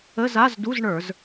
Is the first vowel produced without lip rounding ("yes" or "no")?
yes